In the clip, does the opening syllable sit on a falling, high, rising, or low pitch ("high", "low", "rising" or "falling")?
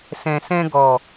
low